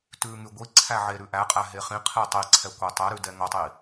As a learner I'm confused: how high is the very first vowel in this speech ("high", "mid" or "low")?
high